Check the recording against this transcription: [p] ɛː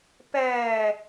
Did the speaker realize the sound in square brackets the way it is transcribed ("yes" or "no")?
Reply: yes